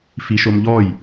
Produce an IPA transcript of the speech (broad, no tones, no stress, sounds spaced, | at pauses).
f i ʃ o m ʎ ɔ j